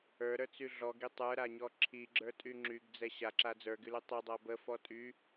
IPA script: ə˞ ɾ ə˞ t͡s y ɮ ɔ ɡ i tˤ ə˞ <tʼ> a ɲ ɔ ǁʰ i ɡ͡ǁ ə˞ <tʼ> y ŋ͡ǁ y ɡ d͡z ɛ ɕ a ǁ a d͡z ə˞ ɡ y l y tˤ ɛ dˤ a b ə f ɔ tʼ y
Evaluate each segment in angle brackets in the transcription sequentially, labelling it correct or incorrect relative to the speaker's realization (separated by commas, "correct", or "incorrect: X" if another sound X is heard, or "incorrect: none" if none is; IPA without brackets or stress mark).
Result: incorrect: ɾ, correct